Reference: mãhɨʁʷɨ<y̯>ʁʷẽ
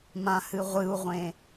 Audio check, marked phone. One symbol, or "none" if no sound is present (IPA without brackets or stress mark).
u̯